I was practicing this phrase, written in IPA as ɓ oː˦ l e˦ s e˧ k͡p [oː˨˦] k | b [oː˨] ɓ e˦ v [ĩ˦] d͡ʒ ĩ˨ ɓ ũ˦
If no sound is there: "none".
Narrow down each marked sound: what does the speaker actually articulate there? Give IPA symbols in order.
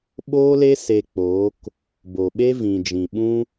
oː˨˦, o˨, ĩ˨

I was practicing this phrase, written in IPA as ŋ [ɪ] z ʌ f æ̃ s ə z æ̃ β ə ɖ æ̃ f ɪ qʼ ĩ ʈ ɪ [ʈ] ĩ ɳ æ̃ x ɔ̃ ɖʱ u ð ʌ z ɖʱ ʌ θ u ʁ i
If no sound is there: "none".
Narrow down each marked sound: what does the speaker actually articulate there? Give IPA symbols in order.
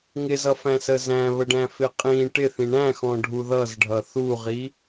ɪ, θ

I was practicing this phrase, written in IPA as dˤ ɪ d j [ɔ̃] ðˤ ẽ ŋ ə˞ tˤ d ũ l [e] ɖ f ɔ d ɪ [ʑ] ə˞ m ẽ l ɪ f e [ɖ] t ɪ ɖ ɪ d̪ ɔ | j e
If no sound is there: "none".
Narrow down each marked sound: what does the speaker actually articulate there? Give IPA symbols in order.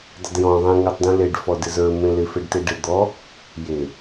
ɔ̃, e, z, ɖ

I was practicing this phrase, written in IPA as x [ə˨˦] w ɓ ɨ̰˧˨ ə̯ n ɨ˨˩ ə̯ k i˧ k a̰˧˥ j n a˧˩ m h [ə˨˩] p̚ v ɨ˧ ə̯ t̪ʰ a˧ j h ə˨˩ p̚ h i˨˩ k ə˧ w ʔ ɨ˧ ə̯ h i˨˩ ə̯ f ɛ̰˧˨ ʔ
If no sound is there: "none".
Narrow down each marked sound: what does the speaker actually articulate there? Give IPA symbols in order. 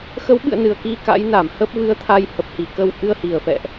ə˨˦, ə˦˥

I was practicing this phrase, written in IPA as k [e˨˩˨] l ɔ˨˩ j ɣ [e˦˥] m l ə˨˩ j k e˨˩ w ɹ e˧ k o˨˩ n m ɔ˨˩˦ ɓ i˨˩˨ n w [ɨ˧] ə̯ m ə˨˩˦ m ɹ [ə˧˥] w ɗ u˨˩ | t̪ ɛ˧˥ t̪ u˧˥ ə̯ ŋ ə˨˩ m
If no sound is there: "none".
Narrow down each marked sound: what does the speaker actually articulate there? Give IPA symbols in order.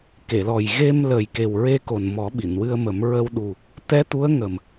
e˨˩˨, e˧, ɨ˧, ə˧

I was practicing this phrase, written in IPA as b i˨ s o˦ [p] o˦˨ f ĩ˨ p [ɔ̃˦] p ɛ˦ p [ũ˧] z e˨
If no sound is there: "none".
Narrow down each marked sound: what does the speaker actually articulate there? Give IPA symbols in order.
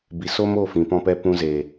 m, ɔ̃˦, ũ˧

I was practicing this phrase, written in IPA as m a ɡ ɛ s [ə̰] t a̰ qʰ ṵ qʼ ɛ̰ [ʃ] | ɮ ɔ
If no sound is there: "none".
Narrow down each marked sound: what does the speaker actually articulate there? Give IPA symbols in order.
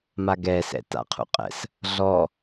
ɛ̰, s

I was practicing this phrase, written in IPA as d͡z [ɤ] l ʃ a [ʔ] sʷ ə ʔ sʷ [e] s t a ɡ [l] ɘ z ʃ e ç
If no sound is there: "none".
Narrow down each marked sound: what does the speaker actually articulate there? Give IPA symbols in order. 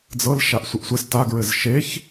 ɤ, ʔ, e, ɹ

